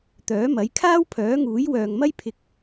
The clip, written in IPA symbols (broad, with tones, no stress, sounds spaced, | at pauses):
t̪ œː˨˥ m ɐ˨˥ j kʰ aː˥ w pʰ œː˨˥ ŋ uː˨˥ j w œː˨ ŋ m ɐ˥ j pʰ ɪ˧ k̚